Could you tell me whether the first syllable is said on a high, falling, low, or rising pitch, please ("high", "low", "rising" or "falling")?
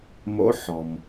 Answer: rising